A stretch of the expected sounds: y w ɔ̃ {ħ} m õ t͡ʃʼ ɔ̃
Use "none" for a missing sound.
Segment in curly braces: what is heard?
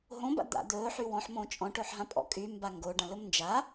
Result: ħ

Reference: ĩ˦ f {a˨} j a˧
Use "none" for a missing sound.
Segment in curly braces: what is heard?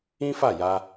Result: a˦˨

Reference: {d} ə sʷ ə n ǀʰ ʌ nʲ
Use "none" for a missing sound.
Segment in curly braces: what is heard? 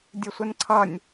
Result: dʲ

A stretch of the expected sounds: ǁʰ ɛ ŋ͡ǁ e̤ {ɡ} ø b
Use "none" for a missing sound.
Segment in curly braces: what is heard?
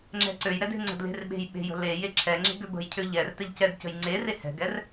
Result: ɡ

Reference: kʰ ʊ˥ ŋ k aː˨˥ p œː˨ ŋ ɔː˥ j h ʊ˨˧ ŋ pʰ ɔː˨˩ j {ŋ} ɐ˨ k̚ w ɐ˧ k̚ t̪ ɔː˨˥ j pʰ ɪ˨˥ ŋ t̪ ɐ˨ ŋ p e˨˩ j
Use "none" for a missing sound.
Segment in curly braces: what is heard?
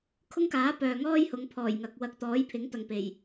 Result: ŋ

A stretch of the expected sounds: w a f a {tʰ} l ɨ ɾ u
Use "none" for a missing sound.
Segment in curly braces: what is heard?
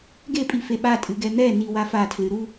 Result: tʰ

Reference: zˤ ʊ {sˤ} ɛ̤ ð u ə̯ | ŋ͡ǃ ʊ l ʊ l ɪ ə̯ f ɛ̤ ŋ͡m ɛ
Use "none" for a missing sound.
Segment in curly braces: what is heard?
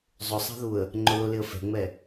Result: sˤ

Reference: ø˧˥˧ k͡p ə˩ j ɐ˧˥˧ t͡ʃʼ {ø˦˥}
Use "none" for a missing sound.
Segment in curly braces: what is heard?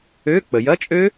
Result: ø˦˥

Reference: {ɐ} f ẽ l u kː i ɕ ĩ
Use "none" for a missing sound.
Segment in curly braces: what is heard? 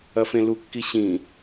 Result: ɐ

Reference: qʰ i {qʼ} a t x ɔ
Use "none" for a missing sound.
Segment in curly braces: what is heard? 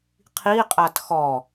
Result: qʼ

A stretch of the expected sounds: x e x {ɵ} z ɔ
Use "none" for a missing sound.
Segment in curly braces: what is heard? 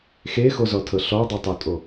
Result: o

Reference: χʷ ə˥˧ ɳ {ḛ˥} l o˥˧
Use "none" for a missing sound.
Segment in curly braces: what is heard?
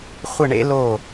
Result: ḛ˥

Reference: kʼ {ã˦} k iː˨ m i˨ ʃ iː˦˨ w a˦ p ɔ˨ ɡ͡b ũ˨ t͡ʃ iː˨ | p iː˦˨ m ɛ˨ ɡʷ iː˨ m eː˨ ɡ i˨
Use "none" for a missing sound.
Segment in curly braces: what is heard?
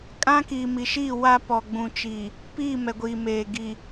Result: ã˦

